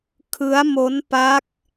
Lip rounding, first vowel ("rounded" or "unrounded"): unrounded